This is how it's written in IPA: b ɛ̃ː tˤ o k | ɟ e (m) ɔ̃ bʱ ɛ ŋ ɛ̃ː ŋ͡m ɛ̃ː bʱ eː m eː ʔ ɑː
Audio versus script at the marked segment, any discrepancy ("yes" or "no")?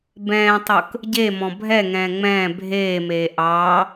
no